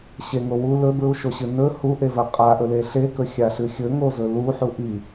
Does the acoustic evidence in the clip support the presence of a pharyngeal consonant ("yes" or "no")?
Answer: yes